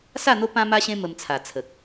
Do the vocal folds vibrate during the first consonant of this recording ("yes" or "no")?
no